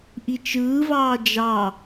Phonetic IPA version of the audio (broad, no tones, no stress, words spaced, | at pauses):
ʔit͡ʃɯːvɑː d͡ʒɑ